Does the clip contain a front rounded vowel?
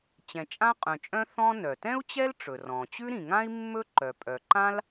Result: yes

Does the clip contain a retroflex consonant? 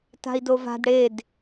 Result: yes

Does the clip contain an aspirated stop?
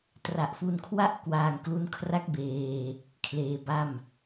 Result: yes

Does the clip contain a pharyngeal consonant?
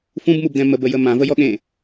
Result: no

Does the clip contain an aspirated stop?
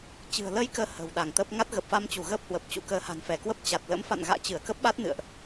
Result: no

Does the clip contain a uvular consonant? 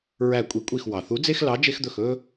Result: no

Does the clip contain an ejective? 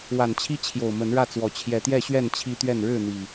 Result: no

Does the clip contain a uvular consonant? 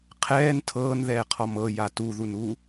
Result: yes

